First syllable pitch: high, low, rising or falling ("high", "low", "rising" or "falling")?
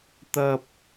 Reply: high